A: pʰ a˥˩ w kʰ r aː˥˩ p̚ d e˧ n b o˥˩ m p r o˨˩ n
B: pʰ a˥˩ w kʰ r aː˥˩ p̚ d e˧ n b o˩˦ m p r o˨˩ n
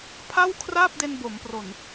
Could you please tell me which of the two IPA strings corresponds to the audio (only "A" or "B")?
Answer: B